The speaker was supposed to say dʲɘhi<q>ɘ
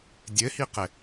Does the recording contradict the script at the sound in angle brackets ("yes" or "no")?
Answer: no